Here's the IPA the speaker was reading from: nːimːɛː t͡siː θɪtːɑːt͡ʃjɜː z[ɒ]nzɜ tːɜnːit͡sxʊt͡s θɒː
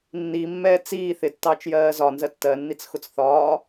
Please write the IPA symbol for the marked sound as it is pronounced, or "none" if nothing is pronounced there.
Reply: ɒ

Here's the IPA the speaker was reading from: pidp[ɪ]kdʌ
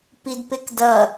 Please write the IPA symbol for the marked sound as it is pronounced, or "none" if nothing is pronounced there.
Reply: ɪ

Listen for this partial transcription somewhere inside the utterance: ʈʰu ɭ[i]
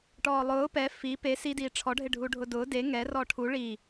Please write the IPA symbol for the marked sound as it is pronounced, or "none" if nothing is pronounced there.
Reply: i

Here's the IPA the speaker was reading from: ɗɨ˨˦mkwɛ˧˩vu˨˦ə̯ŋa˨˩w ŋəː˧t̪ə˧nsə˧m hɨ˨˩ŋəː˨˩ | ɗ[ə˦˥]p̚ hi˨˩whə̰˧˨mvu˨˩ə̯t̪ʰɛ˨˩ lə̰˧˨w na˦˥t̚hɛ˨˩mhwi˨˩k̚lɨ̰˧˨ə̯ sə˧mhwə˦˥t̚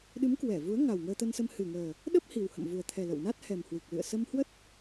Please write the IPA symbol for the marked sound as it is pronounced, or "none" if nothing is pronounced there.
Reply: ə˦˥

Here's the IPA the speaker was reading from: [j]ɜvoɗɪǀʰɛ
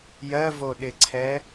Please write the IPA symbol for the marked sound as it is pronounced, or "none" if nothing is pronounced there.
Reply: j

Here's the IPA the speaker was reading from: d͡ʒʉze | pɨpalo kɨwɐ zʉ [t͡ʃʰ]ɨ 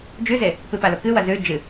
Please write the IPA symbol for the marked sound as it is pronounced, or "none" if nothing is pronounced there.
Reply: d͡ʒ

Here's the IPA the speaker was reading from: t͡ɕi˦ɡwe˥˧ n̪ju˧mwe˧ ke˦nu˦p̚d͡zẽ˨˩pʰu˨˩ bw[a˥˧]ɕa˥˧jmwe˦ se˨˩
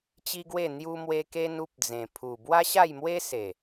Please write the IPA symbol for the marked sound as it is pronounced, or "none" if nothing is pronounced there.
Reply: a˦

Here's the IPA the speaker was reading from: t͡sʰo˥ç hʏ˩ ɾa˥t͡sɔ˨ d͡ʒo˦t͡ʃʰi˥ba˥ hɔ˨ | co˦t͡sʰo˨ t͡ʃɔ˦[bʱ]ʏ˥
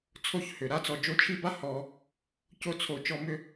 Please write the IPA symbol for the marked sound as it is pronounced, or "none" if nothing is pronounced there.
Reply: m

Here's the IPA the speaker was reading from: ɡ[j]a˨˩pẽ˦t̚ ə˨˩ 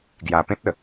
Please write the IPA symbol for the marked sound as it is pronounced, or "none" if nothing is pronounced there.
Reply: j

